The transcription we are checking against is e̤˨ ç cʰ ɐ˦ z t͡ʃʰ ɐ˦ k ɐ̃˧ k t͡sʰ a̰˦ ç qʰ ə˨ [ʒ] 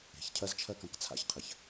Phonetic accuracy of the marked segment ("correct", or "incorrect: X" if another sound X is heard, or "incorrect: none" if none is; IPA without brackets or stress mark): incorrect: ç